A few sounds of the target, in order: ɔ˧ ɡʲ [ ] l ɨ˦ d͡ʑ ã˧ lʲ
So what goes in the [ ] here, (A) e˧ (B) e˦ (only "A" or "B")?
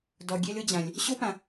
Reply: B